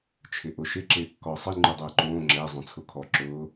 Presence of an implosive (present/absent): absent